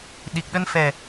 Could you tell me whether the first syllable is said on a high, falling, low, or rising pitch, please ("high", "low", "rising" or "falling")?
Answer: low